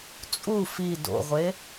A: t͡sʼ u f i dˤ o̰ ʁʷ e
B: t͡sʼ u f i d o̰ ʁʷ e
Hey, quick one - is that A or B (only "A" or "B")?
B